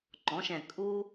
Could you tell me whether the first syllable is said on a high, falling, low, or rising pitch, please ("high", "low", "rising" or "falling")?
rising